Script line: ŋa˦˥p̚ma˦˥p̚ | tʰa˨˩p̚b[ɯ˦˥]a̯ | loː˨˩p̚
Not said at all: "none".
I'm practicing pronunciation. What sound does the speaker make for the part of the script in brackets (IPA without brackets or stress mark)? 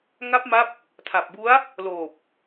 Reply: u˦˥